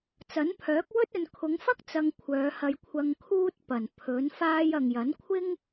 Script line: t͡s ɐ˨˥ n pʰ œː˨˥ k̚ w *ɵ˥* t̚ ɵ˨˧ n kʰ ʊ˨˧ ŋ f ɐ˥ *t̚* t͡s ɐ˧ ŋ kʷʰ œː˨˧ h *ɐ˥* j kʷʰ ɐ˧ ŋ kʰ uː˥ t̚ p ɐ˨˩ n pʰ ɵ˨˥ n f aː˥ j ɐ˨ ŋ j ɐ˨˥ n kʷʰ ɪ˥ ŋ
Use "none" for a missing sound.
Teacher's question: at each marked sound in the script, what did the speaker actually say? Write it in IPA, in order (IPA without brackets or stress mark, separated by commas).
ɵ˥, k̚, ɐ˧